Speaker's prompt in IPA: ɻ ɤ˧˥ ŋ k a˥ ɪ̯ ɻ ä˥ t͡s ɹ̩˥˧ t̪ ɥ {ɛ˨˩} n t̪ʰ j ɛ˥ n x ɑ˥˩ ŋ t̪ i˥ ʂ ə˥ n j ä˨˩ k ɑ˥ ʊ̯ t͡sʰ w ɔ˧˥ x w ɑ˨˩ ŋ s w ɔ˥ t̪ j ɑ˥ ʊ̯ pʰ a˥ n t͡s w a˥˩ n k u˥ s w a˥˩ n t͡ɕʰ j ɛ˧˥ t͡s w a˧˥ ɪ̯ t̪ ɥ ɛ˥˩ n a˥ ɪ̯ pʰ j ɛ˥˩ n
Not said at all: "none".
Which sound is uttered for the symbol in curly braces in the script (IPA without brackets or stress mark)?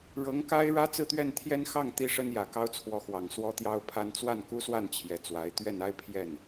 ɛ˥˩